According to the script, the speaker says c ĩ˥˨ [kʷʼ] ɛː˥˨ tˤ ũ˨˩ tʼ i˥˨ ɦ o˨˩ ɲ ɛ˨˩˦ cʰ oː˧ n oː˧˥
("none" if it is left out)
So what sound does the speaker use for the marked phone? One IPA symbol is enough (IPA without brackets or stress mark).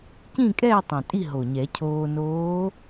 kʼ